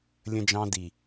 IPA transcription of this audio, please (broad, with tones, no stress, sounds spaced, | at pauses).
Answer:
lʲ ə̃˦ d͡ʒ ɑ̃˦ d i˨